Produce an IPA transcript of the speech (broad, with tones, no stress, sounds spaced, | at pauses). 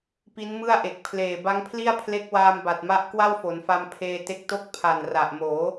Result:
p i˦˥ n m ɯ˥˩ a̯ ʔ e˨˩ k̚ pʰ l eː˨˩ b a˦˥ ŋ pʰ l i˥˩ a̯ pʰ l e˦˥ k̚ w aː˧ m b a˨˩ t̚ m a˦˥ ʔ k w a˥˩ w f o˩˦ n f a˧ m pʰ eː˧ t e˦˥ k̚ t o˥˩ k̚ pʰ a˨˩ n r a˨˩ ʔ m oː˩˦